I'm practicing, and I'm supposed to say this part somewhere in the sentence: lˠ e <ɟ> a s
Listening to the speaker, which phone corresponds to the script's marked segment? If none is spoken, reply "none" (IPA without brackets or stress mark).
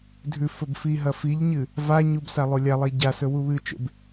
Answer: ɟ